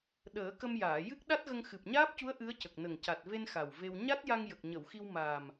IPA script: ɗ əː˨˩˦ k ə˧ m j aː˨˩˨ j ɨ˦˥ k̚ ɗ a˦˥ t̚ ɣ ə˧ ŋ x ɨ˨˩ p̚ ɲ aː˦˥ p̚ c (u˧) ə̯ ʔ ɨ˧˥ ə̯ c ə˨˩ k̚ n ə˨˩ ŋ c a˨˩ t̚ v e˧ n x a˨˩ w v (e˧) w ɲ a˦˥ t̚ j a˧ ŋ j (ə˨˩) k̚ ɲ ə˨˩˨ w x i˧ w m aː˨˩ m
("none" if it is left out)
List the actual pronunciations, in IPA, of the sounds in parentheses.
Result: u˧˥, e˧, ə˨˩

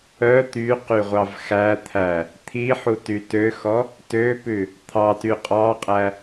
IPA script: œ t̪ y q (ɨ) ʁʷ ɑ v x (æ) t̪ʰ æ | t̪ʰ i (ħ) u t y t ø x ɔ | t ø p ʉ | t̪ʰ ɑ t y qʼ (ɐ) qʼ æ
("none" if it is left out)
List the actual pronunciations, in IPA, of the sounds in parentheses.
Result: y, æ, ħ, ɑ

